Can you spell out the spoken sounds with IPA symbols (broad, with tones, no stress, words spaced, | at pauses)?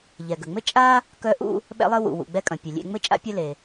ʎɛ˩ɡə˩ ŋ͡mɘ˥ t͡ʃʼa˥ | kœ˥ʔṵ˥ | ɓɛ̰˥lˠɘ˥wṵ˩ wṵ˩ɡ͡bɛ˥kʼɐ̃˩ pʲɐ˩lʲḛ˥ ŋ͡mɘ˥t͡ʃʼa̰˥pʲɐ˥le˩